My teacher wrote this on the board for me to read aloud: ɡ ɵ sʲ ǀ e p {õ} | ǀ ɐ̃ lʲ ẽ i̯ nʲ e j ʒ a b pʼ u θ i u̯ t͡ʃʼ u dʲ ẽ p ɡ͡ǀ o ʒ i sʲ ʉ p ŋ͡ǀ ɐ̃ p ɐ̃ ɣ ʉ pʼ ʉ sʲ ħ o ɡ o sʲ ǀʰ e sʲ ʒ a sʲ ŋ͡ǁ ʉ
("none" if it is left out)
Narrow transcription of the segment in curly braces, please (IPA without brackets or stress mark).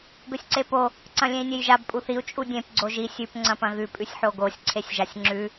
o